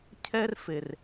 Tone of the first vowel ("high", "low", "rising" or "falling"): high